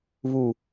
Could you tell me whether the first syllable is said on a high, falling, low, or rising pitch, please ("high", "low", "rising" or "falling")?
low